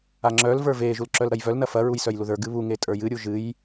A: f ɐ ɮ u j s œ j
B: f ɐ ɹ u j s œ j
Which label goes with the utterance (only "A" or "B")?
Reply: B